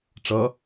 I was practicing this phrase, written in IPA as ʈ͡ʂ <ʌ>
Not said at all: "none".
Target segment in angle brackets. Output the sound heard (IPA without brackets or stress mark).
ʌ